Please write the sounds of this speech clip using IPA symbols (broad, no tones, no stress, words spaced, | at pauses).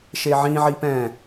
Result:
ʃeʕĩ ʕipɛ̃